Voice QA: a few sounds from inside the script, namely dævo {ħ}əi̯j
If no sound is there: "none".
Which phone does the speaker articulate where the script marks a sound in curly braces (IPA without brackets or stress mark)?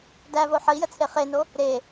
ħ